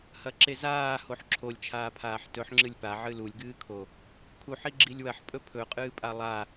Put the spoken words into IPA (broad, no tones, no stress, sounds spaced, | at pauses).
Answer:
h ɐ ǁ e z aː h o ħ ǁʰ o lʲ t͡ʃʰ aː pʰ aː ħ t ɵ ħ ŋ͡ǁ ɨ lʲ p a ʕ ɨ l u lʲ ɡ ɨː kʰ o | kʰ u ħ i ɡ͡ǁ i lʲ w ɐ ħ pʼ ɵ pʰ ɵ qʼ ɨː pʼ a lˠ a